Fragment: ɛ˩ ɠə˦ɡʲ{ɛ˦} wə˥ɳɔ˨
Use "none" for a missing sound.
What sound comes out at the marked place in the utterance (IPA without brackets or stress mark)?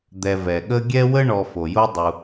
ɛ˥